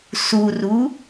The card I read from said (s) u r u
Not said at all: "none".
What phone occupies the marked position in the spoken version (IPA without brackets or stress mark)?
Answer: s